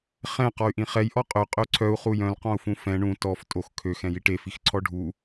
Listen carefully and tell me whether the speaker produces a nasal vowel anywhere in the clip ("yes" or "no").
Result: yes